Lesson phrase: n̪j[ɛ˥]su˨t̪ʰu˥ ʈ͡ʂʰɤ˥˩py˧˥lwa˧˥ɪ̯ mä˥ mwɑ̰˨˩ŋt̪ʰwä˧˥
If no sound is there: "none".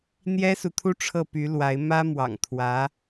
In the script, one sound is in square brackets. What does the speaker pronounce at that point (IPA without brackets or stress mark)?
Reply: ɛ˥